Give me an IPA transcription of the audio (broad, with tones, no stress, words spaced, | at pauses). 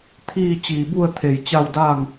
t̪ʰiː˥˨t͡ɕiː˧˩bu˥˨ə̯t̪ʰe˧˩j t͡ɕa˥˨wdaː˥˨ŋ